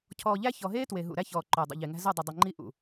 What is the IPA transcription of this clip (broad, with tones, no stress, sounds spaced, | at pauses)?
cʰ ɔː˨ ʎ æ˦ ç ɔ˨ ɦ eː˦ t w e˨ ɦ ṵ˨ ɾ æ˦ ç ɔː˨ ǃ ɵː˨ dˤ ṵ˨ ʎ e˨ ŋ æ̤˦ z ɵ˦˨ dˤ ə˨ dˤ ɵ˨ ŋ͡ǃ i˦ ʔ ṵ˨